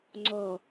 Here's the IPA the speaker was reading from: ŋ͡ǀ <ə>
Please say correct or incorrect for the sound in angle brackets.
incorrect